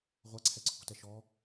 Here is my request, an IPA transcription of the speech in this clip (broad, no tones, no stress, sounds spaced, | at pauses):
ʁʷ a ǀʰ ɛ ǀʰ ṳ t ɛ ʃ ɔ